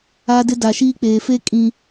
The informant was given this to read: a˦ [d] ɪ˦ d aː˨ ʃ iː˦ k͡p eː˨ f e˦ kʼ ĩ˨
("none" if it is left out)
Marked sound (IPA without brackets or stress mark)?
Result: d